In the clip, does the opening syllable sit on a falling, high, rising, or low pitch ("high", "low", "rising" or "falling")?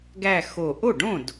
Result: falling